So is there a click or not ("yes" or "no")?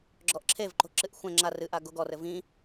yes